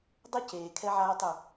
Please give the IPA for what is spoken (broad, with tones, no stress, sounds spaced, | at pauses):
dˤ o˦ c eː˨ kʰ ɛ˦ ʕ aː˦ tˤ ʏ˦˨